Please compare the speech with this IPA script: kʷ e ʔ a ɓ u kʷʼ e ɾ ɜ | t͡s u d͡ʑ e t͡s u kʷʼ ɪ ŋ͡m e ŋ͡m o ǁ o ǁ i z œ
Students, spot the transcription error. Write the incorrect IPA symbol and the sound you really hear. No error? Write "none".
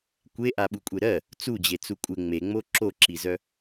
none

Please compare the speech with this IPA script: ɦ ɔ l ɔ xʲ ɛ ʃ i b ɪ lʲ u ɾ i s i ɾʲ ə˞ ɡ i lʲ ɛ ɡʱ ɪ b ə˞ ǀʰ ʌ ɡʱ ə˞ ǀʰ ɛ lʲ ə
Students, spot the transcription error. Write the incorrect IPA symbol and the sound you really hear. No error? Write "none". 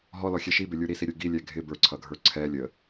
none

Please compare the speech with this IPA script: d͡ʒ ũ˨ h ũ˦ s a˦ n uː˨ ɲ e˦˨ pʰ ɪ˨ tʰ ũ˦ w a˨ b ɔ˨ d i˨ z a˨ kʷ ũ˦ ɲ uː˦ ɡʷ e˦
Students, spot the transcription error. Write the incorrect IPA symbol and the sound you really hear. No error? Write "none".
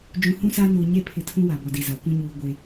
none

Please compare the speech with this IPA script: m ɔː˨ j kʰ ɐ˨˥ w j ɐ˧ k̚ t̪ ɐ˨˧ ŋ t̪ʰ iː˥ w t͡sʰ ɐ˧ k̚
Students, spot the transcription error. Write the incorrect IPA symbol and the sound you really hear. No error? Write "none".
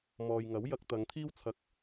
kʰ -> ŋ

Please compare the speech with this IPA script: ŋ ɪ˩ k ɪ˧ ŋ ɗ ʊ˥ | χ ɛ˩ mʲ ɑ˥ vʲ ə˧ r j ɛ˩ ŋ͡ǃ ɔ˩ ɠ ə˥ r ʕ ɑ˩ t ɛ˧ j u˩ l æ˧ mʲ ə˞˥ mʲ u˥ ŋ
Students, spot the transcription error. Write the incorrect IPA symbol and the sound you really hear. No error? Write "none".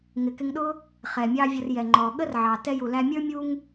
none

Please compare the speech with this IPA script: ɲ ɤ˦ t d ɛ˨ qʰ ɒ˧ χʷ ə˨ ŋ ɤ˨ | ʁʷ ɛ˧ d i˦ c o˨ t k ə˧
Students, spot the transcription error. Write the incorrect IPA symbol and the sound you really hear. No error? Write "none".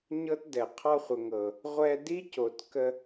none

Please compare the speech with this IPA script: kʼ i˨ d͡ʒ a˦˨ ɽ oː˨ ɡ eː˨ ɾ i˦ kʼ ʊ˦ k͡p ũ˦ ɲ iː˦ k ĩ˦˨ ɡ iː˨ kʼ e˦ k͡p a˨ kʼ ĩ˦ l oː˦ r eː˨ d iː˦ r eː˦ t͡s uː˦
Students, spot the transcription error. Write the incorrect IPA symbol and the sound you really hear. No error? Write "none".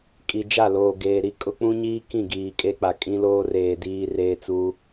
ɽ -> l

